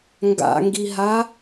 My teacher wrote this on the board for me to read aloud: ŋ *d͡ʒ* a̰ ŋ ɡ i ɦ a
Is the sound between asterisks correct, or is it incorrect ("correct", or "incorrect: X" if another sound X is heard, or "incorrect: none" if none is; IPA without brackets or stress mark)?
incorrect: ɡ